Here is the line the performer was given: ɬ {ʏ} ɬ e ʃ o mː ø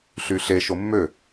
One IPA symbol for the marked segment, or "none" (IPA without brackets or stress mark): y